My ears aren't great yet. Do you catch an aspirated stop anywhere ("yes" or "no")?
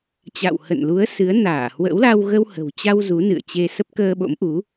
no